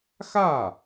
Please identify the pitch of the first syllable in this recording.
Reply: falling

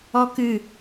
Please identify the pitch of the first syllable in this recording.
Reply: high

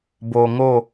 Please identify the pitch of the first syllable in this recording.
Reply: low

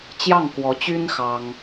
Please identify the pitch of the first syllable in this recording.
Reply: falling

